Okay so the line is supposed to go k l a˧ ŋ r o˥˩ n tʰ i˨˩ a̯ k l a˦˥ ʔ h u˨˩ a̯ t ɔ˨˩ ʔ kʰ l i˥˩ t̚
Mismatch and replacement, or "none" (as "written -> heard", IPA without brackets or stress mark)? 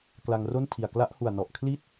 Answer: t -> n